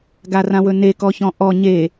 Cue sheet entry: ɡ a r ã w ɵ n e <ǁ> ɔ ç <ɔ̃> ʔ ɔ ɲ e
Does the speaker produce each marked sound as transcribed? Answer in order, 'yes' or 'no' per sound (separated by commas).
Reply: no, yes